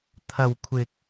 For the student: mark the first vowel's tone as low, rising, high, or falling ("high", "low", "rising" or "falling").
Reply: high